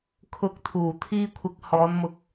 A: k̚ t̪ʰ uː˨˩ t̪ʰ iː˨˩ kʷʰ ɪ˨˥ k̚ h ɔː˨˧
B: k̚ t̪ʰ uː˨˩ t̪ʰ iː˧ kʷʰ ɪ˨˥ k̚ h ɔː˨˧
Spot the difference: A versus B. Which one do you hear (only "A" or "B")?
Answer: B